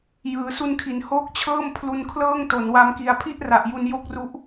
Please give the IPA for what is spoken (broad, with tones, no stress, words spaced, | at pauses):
jɯː˩˦ su˧nkʰi˩˦nhoː˦˥k̚t͡ɕʰɤː˥˩m pʰlu˧nkʰlɤː˥˩ŋto˩˦n wa˦˥mki˧a̯ pʰi˥˩ʔra˨˩ʔ ju˧njo˦˥k̚ru˦˥ʔ